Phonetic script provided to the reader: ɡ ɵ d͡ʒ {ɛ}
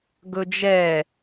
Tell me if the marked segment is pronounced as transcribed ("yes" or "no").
yes